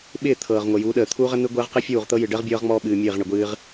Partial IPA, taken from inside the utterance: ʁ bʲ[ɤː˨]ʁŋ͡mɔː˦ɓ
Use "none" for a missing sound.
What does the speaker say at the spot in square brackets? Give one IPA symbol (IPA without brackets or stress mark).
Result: ɤː˦